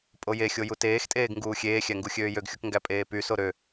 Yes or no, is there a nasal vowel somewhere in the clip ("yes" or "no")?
no